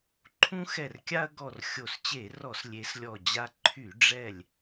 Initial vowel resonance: nasal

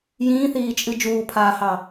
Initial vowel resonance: nasal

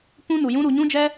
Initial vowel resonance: nasal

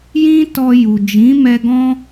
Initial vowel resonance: nasal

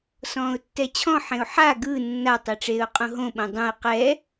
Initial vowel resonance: nasal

